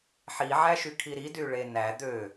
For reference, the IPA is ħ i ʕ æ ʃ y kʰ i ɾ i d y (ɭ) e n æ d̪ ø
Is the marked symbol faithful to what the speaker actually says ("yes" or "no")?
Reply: yes